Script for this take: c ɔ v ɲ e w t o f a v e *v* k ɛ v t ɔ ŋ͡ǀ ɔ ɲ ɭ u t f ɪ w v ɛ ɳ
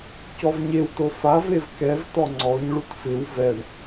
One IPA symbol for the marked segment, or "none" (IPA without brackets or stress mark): v